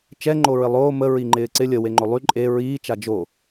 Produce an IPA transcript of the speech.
t͡ʃ ɛ ŋ͡ǃ o ɹ ɪ lˠ oː m ə ɹ i ŋ͡ǃ ɪː ǀ ɪ lʲ ə w e ŋ͡ǃ o lˠ y ǃʼ e ɹ iː t͡ʃ a d͡ʒ o

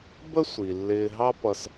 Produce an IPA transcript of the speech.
b ə˥ sʷ i˩ lː ɪː˧ ɦ ɑ˥ p ʌ˧ s

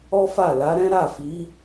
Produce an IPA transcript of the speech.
ɔ˦ f a˦˨ l a˨˦ ɾ ɛ̃˦ ɾ a˦˨ f i˨˦

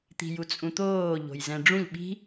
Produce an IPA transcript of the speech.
t̪ i̤ j u t͡sʼ ũ t̪ oː ʎ o̤ j z ɛ̃ ɖ͡ʐ ũ ʎ ɓ i̤

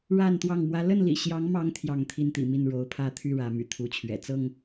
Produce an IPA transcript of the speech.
ɻ a˥˨ n t̪ w ɑ˥˨ ŋ m w ä˦ l ə˥˨ n l ḭ˨˩ ɕ j ɑ˨˦ ŋ m ɑ˨˦ ŋ t̪ʰ j ɑ˥˨ ŋ t̪ʰ i˥˨ n t̪ ḭ˨˩ m i˥˨ n ɻ o˨˦ ʊ̯ pʰ ä˥˨ t̪ʰ y˥˨ ɻ ä˨˦ m y̰˨˩ t̪ʰ u˨˦ t͡ɕʰ ɥ ɛ̰˨˩ t͡s ɤ˥˨ ŋ

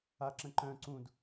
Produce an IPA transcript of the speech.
a ǁ ə̃ ǃ œ̃ ǀ ũ d

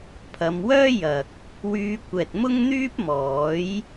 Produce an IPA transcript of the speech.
pʰ ɐ˨˧ m w œː˥ j ɐ˨ k̚ | w yː˧ kʷ ɛː˨ t̚ m ʊ˥ ŋ n̪ yː˥ p̚ m ɔː˨˥ j

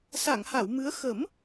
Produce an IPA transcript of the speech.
s a˨˩˨ ŋ h a˨˩˨ w m ɨ˧˥ ə̯ x ə˨˩˦ m

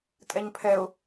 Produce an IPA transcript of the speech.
tʼ ɛ ɲ pʰ ɛ ʊ̯

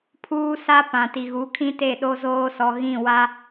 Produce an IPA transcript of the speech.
pʰ uː˦ s a˦ p ã˨ t i˨ ɣ u˨˦ kʰ ĩ˦ t e˦˨ ɗ o˦ z oː˦ s ɔ˨ ɣ ĩ˦˨ w a˦

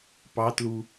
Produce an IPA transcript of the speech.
p ɑ t l u

